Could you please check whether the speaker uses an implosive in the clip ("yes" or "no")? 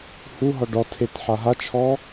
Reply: no